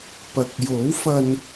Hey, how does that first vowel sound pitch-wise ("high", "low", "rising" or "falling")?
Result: low